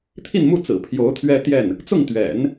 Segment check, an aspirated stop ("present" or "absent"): present